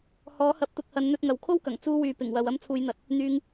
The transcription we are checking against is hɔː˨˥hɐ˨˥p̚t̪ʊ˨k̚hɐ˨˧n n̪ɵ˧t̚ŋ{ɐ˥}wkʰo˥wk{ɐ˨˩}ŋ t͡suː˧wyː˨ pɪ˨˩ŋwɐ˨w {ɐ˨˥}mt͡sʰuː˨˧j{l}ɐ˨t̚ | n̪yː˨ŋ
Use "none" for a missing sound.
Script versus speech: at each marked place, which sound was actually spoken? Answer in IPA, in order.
ɐ˨, ɐ˨˩, ɐ˧, n̪

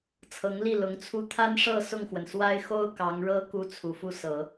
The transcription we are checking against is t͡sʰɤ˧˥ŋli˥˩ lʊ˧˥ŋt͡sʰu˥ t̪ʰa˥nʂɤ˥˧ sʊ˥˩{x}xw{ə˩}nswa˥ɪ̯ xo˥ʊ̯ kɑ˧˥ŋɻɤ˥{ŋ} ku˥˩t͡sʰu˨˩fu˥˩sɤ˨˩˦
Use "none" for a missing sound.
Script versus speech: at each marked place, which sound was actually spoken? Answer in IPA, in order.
ŋ, ə˩, none

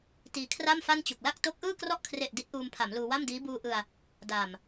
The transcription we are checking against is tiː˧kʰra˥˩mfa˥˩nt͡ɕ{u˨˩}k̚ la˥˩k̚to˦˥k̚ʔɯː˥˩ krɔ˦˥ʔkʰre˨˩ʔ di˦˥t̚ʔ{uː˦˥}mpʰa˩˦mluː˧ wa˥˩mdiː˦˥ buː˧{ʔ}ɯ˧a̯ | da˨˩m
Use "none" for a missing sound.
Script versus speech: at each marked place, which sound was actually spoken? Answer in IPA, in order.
u˨˩, uː˧, ʔ

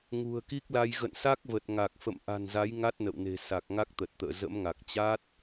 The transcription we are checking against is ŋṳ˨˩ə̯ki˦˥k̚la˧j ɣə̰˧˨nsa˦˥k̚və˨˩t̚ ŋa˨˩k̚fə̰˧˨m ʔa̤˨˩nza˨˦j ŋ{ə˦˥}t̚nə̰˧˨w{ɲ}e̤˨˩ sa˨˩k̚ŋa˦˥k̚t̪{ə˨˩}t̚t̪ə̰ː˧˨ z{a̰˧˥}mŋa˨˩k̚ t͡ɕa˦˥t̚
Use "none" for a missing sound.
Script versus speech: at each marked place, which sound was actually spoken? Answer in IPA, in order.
a˦˥, n, ə˨˩, ə̰˧˥

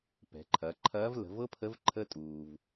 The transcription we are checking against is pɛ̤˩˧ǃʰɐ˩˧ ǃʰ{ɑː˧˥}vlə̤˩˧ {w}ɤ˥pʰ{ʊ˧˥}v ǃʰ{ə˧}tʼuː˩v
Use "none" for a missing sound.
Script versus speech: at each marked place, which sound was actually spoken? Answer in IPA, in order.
ɐː˧˥, v, ə˧˥, ə˧

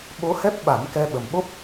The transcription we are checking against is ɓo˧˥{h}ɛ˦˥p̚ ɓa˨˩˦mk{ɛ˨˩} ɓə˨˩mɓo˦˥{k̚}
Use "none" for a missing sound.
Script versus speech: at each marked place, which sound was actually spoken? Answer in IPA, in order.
h, ɛ˧, p̚

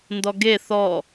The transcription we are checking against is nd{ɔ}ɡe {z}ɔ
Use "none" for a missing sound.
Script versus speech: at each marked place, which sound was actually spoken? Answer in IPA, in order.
ɔ, θ

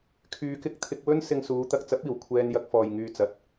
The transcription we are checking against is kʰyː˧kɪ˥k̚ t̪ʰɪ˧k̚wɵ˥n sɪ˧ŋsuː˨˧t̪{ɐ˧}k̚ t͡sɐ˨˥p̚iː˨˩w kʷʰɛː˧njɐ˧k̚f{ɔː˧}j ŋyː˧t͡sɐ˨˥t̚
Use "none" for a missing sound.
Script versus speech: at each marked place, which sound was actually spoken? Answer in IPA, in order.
ɐ˧, ɔː˨

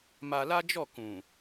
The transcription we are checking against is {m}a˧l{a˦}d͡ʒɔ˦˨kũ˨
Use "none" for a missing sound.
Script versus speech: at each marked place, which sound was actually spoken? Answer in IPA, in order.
m, a˦

